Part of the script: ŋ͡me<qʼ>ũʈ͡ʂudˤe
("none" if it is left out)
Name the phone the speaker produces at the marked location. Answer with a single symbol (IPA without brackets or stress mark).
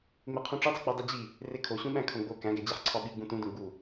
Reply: qʰ